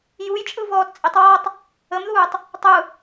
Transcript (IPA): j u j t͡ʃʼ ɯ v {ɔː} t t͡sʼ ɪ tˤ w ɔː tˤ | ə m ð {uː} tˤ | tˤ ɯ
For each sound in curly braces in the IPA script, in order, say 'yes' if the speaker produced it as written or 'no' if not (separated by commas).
yes, yes